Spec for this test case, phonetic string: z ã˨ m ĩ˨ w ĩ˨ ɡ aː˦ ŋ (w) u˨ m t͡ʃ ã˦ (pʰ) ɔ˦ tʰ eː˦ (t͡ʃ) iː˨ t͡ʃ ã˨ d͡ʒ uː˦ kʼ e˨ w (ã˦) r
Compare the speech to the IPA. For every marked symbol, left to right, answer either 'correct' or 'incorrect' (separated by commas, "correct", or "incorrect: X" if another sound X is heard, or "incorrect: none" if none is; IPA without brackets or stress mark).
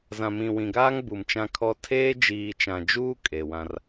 incorrect: b, incorrect: kʰ, incorrect: d͡ʒ, correct